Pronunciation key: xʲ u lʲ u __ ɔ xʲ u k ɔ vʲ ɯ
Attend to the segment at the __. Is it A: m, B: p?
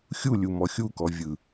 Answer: A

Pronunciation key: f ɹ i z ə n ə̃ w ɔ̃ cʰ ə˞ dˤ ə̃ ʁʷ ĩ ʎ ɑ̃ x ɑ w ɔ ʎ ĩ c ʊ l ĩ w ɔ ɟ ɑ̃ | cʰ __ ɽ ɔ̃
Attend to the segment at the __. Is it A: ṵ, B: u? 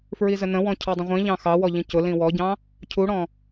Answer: B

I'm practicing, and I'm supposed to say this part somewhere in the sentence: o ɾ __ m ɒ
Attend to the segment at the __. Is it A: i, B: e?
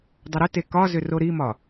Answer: A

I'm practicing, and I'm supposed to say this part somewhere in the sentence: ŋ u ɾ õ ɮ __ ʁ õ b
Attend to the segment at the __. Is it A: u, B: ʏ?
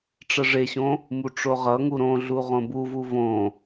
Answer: A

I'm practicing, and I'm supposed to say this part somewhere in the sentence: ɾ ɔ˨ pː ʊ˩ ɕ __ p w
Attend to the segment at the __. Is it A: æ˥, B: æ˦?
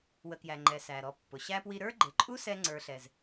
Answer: A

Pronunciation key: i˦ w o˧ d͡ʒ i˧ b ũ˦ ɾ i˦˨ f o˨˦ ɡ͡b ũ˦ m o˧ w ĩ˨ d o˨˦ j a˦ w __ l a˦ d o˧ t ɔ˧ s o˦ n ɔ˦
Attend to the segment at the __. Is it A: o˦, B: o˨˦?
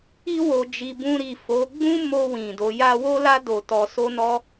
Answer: A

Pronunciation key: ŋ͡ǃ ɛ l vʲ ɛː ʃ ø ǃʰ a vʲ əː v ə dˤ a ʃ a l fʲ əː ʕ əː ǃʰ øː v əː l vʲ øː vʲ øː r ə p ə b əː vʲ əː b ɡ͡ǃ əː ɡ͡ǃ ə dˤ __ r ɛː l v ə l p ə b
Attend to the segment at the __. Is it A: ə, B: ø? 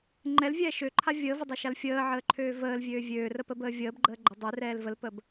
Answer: B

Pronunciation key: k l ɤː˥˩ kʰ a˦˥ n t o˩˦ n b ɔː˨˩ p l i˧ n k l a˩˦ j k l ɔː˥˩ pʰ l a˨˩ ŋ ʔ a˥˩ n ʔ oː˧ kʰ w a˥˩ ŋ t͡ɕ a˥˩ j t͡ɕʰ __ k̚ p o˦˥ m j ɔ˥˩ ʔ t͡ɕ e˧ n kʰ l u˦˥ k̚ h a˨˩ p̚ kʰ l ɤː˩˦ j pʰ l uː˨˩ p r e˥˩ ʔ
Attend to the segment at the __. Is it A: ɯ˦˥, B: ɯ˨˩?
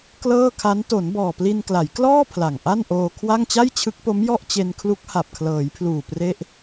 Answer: A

